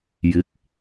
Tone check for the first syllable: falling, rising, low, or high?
rising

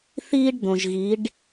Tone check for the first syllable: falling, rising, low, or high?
high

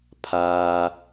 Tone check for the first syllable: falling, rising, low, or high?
low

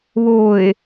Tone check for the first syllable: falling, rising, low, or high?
low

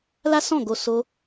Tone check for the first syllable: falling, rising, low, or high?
high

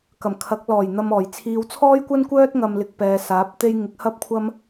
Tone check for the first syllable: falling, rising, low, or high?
low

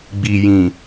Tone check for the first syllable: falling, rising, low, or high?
low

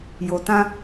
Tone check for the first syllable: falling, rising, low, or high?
low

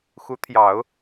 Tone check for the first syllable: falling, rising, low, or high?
rising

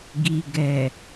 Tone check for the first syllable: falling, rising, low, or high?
low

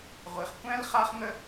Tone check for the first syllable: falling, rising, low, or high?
low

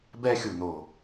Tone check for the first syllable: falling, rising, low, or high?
high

